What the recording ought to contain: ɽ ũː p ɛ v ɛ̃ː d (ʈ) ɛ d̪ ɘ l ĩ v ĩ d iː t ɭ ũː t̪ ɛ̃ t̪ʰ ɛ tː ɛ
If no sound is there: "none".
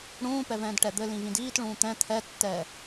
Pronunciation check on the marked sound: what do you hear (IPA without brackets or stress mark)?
ʈ